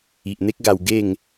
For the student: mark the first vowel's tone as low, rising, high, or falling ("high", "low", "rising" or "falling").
low